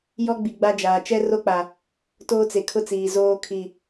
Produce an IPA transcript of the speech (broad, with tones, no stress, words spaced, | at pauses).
jɔ˦ɡ͡bi˨ ɡ͡ba˦d͡ʒaː˨ t͡ʃɛ˦ro˦k͡pa˨ | toː˦t͡se˨kʰʊ˦t͡siː˨ zoː˦ kʰi˨